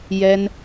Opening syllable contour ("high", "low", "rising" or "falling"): high